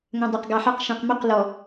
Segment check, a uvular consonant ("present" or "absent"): present